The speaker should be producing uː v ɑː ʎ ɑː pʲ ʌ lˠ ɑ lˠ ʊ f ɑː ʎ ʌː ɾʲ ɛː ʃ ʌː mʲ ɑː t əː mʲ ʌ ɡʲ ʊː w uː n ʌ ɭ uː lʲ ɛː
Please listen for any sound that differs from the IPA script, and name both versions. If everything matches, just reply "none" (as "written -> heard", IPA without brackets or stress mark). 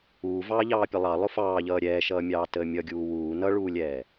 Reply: ʊː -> uː